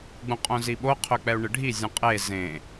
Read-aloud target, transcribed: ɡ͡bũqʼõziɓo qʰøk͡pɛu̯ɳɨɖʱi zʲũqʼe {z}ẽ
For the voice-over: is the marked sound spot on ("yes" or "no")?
yes